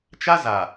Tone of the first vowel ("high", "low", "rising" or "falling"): high